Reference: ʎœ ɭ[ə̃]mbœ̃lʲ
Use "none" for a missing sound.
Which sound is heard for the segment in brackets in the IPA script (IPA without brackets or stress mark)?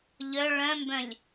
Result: œ̃